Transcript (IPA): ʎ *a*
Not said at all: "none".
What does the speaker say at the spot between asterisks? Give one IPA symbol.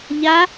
a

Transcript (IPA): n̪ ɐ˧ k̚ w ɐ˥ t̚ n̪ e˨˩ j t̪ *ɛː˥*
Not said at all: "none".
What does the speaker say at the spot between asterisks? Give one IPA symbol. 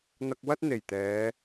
ɛː˨˧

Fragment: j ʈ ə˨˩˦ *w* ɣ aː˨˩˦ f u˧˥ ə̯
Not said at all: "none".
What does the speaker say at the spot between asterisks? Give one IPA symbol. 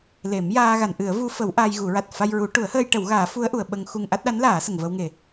w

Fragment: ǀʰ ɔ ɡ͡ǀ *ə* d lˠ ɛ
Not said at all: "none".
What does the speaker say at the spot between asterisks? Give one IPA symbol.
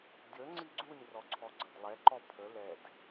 ə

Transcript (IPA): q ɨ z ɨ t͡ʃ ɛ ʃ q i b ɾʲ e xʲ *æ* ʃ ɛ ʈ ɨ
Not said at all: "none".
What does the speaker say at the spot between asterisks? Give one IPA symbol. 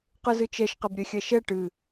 ɛ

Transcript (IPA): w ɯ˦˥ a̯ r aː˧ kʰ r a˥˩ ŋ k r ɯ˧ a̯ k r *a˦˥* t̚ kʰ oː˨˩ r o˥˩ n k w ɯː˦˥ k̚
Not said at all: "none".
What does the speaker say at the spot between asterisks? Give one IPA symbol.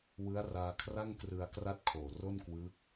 a˦˥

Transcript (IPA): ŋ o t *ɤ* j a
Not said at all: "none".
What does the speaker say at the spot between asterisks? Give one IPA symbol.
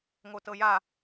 ɤ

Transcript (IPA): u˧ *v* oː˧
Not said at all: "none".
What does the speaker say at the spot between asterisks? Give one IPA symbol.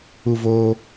v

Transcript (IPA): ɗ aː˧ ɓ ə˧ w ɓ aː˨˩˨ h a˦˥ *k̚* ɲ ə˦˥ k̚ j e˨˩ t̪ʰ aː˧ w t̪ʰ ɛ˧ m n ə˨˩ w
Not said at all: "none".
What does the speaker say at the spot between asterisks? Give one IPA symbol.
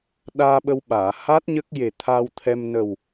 t̚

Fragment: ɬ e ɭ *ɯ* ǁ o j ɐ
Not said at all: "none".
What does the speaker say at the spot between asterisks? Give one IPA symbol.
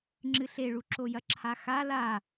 u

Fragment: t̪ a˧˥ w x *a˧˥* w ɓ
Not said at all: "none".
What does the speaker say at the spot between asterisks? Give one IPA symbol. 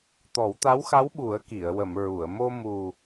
a˧˥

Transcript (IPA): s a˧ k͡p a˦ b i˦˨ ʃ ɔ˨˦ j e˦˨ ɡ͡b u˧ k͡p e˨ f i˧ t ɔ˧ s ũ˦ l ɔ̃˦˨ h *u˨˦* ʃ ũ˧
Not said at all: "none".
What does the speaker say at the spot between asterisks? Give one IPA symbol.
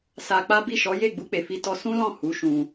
u˨˦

